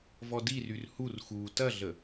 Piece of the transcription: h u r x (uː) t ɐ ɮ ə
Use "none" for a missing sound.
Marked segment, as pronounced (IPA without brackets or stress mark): uː